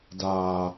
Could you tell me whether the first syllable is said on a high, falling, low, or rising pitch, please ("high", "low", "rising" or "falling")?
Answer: low